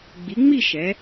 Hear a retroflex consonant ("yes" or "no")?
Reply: no